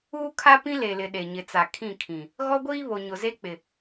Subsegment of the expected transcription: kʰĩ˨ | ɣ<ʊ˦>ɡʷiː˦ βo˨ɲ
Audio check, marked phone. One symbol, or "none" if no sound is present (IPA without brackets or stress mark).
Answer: ɔ˦